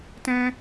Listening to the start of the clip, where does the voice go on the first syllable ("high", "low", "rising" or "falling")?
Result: high